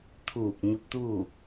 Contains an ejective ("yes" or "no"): no